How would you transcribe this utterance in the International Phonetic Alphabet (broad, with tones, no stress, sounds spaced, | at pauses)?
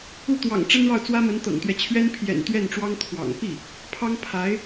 u˥˩ t̪ w ɑ̰˨˩ ŋ ʈ͡ʂ ə˥ n ɻ ɑ˥˩ ʊ̯ t͡s w ä˥ m ə˧˥ n t̪ ɤ̰˨˩ ŋ t̪ ɥ ɛ˦ t͡ɕʰ ɥ ɛ˥ n pʰ j ɛ̰˨˩ n t̪ ɥ ɛ˥˩ n ʈ͡ʂ w ɑ˥ ŋ t̪ʰ w ɑ̰˨˩ ŋ p i˥˩ | pʰ ɑ˥ ŋ pʰ a˧˥ ɪ̯